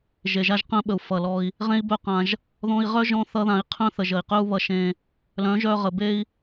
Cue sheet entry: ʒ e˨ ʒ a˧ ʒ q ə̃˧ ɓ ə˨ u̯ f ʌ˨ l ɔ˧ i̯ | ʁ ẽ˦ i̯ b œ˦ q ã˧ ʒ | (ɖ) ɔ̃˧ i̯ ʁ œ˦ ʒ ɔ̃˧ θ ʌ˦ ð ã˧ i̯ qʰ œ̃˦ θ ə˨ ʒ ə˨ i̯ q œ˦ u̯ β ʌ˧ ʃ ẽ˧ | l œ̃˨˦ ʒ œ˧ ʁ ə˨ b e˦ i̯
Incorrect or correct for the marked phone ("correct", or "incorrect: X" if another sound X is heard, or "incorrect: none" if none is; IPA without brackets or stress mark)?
incorrect: ð